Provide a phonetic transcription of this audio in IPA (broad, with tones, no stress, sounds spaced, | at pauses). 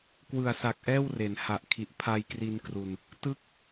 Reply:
k w ɯ˨˩ a̯ s a˨˩ k̚ ʔ ɛː˥˩ w r e˩˦ n h a˨˩ ʔ kʰ i˨˩ ʔ pʰ a˧ j k r i˧ n k r u˧ n | t ɯ˦˥ k̚